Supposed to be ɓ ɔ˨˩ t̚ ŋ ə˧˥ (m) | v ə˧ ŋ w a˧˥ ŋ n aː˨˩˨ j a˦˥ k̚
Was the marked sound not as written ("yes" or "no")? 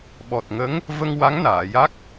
yes